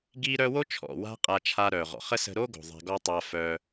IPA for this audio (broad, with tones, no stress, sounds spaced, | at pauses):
ɡ i˦ ɾ œ˦ w o˦ t͡ʃʰ ɔ̰˨ w a̤˦ qʼ a˧ t͡ʃʰ a˧ ɾ œ˨ ʁ ɔ̰˨ χ ə˦ s ə̤˧ ɾ o˦ ɡ o̤˨ ðˤ a̤˧ ɡ ɔ˦ tˤ a˧ f œ˧